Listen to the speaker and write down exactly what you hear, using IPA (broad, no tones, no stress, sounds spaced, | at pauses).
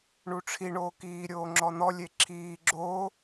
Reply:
ɳ u ʈ͡ʂʰ i ɳ oː k iː ɾʲ oː ŋ͡ǁ ɔ n̪ ɔ lʲ e ǁʰ iː ɡ͡ǁ oː